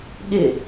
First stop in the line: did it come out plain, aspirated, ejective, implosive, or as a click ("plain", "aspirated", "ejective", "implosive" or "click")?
implosive